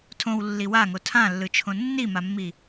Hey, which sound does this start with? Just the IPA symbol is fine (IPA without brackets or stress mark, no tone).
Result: tʰ